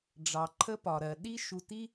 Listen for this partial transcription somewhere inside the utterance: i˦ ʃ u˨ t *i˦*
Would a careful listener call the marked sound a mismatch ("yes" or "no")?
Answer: no